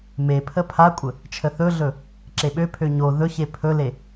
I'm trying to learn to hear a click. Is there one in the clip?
yes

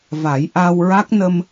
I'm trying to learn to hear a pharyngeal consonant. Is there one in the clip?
no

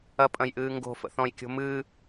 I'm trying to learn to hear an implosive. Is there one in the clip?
no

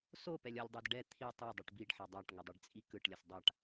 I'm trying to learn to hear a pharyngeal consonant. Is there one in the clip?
yes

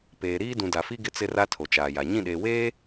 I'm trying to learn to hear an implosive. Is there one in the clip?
yes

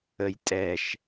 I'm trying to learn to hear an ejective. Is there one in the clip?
yes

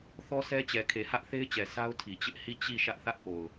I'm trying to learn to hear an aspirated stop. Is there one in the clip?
yes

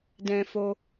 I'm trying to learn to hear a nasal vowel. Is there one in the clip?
yes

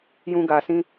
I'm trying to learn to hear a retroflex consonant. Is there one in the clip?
no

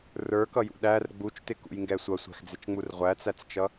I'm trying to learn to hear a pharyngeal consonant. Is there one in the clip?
no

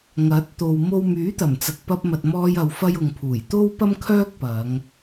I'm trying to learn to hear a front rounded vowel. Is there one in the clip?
yes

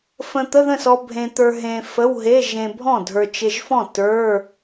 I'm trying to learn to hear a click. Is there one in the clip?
no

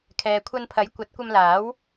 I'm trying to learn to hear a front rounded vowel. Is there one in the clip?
no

